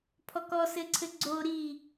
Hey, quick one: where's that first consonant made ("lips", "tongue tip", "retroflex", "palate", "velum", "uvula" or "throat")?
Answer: lips